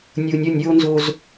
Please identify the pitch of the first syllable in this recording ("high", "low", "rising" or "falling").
low